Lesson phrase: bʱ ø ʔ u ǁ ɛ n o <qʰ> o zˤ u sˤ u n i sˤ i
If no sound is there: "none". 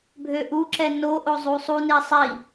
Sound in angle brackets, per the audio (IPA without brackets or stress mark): ʔ